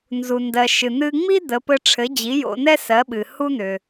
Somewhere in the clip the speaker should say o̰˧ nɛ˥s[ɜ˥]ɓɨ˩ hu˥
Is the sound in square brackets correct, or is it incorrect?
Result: incorrect